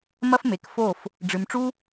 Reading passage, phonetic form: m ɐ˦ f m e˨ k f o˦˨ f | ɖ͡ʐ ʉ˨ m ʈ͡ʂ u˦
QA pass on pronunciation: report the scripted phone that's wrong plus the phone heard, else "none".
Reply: ʉ˨ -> ɨ˨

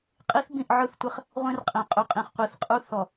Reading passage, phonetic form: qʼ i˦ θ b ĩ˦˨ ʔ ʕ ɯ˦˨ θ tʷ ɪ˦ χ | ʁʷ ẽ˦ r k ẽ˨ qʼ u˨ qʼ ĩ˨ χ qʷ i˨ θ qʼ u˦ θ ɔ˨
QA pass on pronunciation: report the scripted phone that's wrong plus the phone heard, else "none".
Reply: k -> qʼ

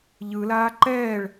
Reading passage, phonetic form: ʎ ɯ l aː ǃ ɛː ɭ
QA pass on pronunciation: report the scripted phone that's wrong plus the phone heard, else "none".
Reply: none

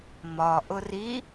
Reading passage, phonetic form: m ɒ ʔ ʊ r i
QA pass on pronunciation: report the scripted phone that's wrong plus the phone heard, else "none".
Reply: none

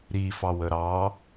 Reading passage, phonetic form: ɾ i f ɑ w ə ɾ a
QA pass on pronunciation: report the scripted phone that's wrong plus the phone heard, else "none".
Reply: a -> ɑ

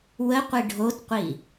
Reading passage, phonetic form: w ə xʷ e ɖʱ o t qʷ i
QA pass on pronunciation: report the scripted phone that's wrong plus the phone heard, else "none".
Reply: xʷ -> qʷ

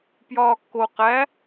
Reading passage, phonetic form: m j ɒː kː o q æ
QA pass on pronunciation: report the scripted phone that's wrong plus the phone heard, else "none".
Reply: m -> p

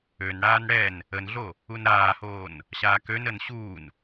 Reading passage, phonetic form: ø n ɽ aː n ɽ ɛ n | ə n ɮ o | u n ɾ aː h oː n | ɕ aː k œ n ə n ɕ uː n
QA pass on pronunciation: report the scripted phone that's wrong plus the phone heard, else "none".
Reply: œ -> ø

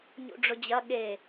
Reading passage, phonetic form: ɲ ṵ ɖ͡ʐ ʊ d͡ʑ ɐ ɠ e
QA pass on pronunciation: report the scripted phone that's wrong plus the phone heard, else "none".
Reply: none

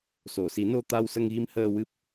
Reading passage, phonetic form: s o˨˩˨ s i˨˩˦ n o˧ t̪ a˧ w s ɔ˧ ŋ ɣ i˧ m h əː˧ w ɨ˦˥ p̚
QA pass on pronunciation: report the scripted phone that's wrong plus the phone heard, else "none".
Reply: ɔ˧ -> ə˧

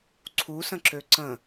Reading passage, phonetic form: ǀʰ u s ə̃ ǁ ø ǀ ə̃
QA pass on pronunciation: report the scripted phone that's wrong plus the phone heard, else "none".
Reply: none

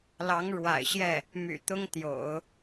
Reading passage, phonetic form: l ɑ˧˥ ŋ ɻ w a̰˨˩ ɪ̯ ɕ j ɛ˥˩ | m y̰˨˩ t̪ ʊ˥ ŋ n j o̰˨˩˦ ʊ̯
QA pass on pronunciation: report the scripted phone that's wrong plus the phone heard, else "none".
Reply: n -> t̪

